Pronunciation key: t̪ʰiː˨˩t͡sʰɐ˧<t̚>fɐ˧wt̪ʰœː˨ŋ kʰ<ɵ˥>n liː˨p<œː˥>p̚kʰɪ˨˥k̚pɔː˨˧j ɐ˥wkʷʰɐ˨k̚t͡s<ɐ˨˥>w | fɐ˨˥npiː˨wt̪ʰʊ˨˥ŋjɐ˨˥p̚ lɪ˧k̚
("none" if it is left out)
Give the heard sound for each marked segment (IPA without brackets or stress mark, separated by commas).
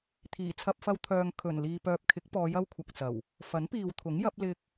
p̚, ɵ˨˩, œː˨, ɐ˨˩